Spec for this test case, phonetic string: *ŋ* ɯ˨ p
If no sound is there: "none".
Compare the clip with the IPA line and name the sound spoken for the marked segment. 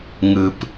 ŋ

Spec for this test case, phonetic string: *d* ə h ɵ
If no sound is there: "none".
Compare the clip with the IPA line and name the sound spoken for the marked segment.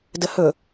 d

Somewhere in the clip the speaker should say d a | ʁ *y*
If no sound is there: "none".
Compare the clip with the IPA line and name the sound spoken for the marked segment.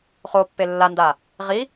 i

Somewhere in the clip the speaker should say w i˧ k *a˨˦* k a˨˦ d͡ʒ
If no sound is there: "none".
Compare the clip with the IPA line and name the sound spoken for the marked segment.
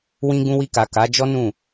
a˨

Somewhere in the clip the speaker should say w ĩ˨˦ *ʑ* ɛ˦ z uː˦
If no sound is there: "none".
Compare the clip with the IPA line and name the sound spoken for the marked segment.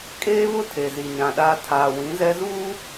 z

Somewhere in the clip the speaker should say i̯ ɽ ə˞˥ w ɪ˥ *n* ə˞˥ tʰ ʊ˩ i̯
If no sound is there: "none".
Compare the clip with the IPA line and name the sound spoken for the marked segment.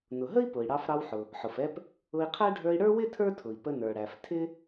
tʰ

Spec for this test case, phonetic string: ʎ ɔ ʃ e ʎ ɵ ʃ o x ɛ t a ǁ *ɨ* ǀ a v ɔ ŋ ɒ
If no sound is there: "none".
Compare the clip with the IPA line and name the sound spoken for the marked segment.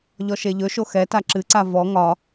ɨ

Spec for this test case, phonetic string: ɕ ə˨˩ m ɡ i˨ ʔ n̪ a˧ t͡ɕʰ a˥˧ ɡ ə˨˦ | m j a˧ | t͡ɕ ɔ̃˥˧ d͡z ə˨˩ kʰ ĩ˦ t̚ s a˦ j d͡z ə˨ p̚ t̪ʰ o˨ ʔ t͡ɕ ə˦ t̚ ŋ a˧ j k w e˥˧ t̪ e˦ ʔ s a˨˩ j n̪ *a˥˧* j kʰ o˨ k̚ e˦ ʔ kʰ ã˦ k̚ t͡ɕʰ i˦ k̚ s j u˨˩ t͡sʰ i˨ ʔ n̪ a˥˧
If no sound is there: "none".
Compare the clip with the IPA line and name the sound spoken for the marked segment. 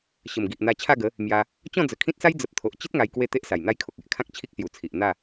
a˥˧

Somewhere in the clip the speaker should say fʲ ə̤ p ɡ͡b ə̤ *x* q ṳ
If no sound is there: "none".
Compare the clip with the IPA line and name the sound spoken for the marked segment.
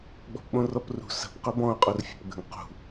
ŋ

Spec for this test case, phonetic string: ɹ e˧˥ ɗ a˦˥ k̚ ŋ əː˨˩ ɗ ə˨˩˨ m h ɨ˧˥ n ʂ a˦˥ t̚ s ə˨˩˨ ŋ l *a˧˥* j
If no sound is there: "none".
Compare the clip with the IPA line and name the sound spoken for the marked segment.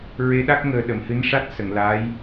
aː˧˥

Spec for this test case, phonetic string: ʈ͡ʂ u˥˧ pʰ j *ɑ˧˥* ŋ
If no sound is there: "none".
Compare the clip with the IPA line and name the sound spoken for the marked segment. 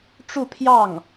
ɑ˥˩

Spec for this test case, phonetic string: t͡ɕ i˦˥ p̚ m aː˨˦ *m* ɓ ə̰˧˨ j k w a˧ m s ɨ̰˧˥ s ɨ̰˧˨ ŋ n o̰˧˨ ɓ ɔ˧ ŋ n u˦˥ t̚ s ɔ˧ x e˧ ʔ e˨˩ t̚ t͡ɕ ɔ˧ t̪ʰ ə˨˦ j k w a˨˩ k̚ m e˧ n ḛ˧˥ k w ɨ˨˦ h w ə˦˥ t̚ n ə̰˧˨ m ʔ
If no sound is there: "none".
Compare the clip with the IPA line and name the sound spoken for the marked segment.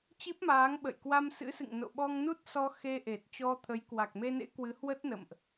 ŋ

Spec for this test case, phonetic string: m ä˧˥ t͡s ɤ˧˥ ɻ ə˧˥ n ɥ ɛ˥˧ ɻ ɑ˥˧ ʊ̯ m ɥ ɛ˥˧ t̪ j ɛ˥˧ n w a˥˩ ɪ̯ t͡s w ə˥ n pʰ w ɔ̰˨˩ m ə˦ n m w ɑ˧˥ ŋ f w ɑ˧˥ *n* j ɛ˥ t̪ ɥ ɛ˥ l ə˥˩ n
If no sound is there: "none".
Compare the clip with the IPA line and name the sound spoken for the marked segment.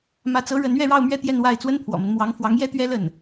ŋ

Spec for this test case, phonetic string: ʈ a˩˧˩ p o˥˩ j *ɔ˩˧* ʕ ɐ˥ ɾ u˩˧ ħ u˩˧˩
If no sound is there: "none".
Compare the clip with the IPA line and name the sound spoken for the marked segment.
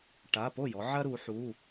ɔ˩˧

